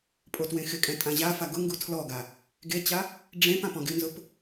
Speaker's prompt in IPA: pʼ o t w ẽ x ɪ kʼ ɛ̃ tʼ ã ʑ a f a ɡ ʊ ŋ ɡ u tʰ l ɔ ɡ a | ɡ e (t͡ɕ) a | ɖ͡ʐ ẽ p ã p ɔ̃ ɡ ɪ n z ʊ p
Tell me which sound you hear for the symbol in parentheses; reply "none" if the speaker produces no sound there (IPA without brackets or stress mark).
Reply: t͡ɕ